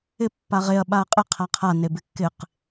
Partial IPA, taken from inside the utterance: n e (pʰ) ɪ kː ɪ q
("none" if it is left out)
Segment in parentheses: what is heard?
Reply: b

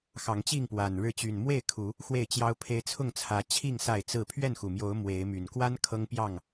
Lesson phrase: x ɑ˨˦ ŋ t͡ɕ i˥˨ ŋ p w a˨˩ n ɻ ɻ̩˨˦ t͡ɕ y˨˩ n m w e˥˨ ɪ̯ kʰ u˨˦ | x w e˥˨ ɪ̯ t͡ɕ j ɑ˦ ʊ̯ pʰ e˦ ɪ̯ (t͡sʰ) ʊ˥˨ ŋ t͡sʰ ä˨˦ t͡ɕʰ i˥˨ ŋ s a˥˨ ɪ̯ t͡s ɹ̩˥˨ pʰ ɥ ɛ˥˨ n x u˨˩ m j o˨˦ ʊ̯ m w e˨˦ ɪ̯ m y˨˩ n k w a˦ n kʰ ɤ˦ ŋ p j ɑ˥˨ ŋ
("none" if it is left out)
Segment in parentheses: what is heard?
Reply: t͡sʰ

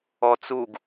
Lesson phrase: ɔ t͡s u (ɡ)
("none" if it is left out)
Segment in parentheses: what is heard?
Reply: ɡ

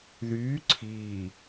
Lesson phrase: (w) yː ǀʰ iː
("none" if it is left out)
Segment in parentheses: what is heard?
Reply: ð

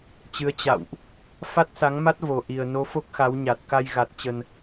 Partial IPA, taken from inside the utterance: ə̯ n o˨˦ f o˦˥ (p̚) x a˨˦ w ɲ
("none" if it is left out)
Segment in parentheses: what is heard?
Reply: k̚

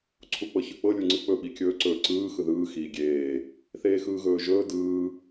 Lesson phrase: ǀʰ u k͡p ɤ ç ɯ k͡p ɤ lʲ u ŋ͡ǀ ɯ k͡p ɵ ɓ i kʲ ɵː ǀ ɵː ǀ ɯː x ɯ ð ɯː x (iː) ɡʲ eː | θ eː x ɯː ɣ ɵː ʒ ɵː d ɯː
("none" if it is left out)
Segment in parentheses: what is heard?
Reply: iː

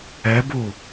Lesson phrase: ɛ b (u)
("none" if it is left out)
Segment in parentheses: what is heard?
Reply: u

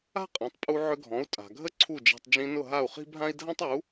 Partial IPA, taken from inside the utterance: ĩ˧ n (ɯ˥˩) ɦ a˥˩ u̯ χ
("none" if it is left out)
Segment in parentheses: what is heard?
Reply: ʊ˥˩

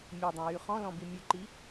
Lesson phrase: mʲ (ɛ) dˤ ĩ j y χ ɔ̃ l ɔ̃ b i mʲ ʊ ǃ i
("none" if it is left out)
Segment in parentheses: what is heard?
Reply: ɛ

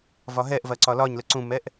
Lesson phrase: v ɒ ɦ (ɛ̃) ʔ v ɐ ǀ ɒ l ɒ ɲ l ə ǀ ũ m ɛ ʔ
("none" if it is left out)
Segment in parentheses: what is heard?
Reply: ɛ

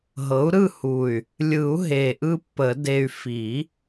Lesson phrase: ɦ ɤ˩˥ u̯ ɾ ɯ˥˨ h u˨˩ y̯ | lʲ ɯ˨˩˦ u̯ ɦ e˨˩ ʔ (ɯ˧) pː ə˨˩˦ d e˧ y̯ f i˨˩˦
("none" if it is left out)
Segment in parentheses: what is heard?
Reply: ɯ˧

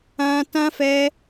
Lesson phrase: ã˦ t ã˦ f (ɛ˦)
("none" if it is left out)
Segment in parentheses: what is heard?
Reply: ɛ˦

